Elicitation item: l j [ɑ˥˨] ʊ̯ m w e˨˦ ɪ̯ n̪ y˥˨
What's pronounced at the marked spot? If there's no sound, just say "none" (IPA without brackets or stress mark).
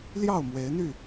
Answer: ɑ˥˨